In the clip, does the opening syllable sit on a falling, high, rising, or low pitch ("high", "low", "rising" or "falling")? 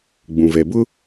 low